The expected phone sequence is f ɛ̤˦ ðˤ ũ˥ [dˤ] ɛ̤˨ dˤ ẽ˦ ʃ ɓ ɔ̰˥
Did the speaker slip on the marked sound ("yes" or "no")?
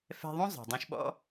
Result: yes